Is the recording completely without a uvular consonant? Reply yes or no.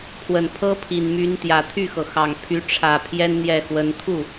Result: yes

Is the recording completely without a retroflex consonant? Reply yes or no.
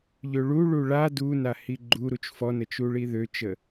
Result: no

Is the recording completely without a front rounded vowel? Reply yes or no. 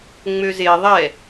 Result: no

